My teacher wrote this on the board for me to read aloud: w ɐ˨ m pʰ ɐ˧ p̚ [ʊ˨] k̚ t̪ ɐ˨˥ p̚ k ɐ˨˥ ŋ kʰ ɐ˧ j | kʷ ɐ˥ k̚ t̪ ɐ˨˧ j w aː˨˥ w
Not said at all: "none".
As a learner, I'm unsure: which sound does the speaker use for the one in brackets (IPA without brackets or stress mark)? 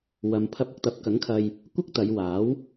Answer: ʊ˨